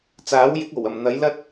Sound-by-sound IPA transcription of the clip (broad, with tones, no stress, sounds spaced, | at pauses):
t͡s aː˨˥ w j ɪ˨˥ k̚ o˨˩ w ɐ˨˩ m n̪ ɐ˨˥ j l ɐ˥ t̚